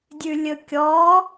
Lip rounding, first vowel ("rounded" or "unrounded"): rounded